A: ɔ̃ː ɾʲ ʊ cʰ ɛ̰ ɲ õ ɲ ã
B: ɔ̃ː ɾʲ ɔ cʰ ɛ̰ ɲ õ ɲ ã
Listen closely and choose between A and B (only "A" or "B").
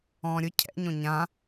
A